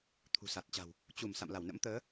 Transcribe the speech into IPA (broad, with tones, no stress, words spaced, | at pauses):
t̪ʰṳ˨˩sa˨˩t̚t͡ɕa̤˨˩w | t͡ɕu˧˩m sa̰˧˨mla˧˩wnə̰˧˥mt̪əː˨˦